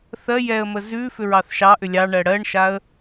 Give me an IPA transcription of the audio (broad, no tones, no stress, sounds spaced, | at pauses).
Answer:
θ ɜ j ɛ ə̯ m ə z ʉ f ʏ ɹ ɑ θ ʃ ɑ ʔ ʏ lʲ ɑ ɳ ɜ ɽ ɜ ɳ ʃ a ə̯